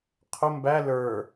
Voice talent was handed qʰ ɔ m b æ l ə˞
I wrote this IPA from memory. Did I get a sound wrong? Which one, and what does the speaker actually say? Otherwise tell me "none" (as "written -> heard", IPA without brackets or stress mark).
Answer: ɔ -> ʊ